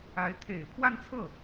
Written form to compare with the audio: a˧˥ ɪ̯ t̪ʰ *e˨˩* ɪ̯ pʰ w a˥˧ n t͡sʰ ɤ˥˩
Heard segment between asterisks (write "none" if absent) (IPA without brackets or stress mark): e˨˩